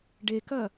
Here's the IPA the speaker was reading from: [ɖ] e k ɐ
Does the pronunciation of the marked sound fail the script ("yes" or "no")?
no